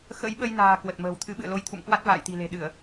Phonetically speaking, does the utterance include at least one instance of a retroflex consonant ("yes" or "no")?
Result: no